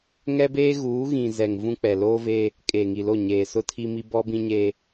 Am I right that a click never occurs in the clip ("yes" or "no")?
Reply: yes